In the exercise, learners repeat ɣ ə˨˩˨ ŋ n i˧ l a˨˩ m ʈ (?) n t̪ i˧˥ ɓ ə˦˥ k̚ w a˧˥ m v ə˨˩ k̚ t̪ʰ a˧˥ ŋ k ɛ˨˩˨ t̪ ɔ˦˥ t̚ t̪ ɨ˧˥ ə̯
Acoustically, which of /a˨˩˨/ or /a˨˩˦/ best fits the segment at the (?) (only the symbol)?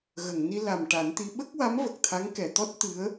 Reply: a˨˩˦